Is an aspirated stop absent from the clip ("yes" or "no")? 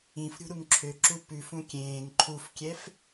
no